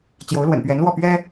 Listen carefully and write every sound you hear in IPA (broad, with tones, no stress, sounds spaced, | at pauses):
t͡ɕ j o˧˥ ʊ̯ l w ə̰˨˩ n p ɥ ɛ˧˥ n l w ɔ˥˩ p ɥ ɛ˥